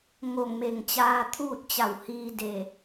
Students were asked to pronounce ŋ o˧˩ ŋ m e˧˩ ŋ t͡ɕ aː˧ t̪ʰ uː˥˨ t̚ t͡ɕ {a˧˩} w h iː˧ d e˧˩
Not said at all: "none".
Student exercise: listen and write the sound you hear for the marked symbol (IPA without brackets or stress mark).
a˧˩